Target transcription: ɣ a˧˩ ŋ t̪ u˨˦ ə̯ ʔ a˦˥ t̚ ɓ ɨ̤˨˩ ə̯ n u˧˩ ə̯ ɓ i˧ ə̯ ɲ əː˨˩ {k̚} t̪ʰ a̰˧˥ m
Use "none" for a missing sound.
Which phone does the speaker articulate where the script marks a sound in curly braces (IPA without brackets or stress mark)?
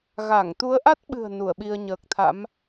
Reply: k̚